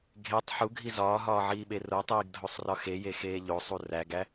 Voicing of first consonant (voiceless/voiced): voiced